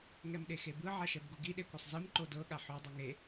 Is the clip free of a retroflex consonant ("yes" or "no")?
yes